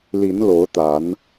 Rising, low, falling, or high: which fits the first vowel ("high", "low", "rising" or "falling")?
rising